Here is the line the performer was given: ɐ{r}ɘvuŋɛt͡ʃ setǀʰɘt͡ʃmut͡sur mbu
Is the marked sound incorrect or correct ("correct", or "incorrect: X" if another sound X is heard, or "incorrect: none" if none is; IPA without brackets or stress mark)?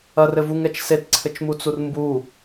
correct